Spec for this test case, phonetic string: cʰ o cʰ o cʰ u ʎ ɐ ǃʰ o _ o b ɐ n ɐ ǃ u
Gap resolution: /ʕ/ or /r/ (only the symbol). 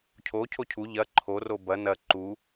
r